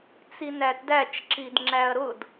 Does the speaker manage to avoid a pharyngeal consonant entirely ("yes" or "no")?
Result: yes